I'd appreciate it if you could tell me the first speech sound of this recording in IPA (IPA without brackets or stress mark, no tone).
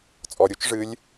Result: t͡sʼ